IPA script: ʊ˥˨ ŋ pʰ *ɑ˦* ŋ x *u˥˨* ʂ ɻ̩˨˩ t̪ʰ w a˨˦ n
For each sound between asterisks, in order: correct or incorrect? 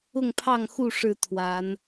incorrect: ɑ˥˨, correct

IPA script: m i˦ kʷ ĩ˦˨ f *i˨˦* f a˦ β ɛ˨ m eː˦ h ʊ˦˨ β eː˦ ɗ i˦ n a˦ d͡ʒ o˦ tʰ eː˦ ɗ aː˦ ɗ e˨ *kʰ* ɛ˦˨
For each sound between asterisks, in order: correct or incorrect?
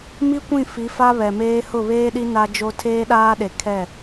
correct, correct

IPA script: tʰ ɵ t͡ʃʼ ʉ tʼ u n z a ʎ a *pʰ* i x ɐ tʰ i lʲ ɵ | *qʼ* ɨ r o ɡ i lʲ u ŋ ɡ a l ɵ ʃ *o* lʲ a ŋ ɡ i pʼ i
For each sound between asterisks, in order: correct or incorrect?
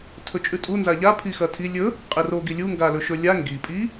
correct, correct, incorrect: ɵ

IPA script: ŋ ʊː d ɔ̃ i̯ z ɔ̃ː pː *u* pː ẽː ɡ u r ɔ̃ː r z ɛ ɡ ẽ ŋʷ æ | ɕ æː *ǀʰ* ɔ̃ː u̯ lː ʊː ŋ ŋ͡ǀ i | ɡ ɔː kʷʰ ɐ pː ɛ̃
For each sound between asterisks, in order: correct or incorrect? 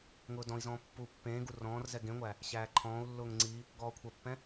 correct, incorrect: ǃʰ

